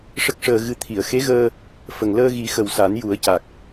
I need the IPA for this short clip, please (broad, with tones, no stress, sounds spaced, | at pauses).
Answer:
ʂ ə˦˥ k̚ ʂ əː˧ ɣ ɨ˧ t̪ʰ i˨˩˨ ə̯ x e˧˥ ɣ əː˧ | f ə˨˩ ŋ l əː˧ ɣ i˨˩˦ x ə˨˩ w s a˨˩˦ n j u˨˩˦ ə̯ c a˨˩ k̚